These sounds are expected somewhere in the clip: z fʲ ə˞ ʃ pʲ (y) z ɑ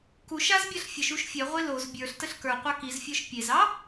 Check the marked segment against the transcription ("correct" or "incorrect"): incorrect